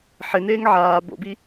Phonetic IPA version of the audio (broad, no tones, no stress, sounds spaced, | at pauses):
ħ ɪ n eː ŋ ʕ aː b o̰ b i